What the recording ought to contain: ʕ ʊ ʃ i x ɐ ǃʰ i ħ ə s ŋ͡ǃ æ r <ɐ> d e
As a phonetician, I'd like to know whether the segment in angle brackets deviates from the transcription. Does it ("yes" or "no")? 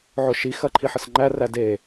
yes